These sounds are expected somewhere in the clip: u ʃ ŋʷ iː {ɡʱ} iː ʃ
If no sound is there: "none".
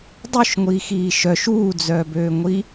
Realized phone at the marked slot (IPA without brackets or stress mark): x